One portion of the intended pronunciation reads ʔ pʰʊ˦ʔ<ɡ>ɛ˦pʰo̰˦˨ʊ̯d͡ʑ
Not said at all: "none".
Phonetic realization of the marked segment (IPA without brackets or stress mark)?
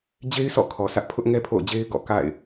ŋ